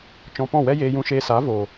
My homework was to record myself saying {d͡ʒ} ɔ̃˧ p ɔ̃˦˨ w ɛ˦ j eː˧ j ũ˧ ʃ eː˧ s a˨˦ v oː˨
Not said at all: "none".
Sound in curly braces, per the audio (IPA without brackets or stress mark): t͡ʃ